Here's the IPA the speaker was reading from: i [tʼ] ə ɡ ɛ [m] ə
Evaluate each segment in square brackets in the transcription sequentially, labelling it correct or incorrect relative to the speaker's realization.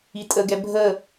correct, incorrect: bʱ

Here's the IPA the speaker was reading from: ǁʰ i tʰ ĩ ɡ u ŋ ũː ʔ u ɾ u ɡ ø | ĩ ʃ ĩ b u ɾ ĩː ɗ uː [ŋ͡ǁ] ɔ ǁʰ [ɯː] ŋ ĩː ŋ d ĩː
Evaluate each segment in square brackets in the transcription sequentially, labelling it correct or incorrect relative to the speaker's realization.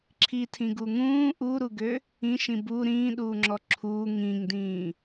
correct, incorrect: uː

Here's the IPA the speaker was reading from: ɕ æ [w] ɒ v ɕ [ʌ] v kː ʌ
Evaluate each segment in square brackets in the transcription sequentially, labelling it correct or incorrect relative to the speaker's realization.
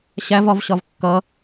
incorrect: v, incorrect: ɒ

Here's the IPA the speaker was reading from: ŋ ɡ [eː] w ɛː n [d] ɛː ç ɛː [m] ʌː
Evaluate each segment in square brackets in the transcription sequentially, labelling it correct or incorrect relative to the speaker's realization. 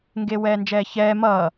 incorrect: e, incorrect: d͡ʒ, correct

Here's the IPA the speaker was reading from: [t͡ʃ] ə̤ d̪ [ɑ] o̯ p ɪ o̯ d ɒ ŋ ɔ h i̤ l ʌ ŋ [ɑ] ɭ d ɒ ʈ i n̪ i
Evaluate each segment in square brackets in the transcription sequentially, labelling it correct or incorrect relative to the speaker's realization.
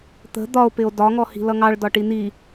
incorrect: t̪, incorrect: ɒ, correct

